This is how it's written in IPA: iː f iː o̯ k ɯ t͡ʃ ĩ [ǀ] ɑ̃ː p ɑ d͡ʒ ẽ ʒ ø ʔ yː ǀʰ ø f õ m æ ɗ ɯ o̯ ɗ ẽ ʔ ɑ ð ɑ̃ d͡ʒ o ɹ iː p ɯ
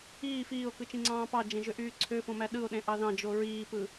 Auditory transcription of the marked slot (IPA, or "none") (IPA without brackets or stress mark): ŋ͡ǀ